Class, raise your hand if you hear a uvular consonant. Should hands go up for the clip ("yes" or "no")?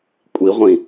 yes